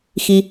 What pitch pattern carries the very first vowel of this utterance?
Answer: high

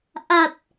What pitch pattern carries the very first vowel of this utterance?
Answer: low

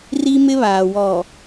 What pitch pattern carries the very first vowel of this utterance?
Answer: high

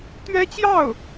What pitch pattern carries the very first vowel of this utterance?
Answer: high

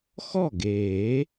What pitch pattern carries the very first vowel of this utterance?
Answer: falling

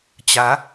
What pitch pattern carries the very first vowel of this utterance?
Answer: rising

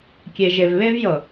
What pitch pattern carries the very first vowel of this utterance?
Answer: low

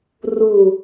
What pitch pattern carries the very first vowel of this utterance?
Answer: low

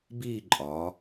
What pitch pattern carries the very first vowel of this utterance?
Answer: falling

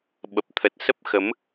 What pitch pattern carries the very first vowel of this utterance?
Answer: low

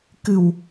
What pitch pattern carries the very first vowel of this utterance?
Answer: low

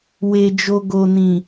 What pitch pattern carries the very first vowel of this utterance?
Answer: low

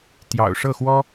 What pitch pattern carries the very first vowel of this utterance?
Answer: low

